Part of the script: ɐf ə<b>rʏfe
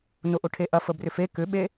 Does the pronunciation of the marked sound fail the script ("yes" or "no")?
no